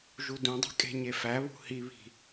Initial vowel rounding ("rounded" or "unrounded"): rounded